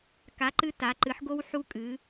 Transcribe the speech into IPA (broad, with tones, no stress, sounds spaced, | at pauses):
k a˨˥ ǃ ɨ˦ t a˩˧ ǃ ɨ˩˧ ħ ɡ o˦ w ħ u˦ kʼ ɨ˩˧